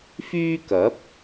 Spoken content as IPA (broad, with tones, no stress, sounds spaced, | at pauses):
f yː˥ k ɐ˨˥ p̚